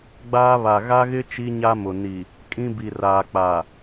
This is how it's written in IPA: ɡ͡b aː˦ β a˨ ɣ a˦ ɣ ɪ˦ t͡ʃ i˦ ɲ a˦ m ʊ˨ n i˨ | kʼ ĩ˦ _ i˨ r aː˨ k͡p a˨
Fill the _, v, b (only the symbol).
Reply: b